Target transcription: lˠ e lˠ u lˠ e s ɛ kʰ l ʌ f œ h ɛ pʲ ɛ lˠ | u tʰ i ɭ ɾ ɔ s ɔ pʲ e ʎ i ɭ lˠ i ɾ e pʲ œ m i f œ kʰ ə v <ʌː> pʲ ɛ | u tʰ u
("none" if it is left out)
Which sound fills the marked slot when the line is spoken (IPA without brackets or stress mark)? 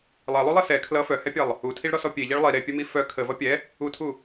ʌ